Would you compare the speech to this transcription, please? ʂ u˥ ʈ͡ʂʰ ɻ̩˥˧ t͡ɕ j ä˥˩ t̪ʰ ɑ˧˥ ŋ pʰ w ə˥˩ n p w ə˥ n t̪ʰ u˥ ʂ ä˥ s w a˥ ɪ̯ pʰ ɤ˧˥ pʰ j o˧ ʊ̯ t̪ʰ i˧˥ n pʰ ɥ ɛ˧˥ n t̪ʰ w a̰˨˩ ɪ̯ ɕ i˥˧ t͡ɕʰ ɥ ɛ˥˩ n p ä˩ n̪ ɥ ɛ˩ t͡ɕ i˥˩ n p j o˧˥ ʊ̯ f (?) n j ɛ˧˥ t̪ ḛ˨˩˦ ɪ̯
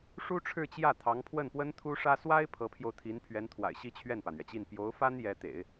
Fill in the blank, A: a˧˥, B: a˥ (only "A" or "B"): B